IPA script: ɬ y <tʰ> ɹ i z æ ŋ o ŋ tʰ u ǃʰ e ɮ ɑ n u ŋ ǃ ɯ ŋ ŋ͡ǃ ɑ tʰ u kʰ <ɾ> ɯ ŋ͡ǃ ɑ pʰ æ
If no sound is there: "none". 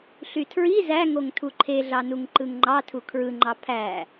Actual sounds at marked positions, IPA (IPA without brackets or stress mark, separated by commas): tʰ, ɹ